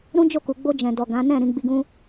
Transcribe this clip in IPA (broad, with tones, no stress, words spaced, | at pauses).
ɾũ˦d͡ʒo˦˨ku˨ ɡ͡bo˧ d͡ʒɛ̃˨dɔ˨ ɡã˨˦ nɛ̃˦˨ ɾĩ˧ɡ͡bi˧ɡũ˦